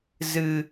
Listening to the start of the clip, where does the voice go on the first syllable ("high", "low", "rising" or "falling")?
high